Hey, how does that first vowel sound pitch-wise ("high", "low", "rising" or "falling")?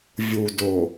low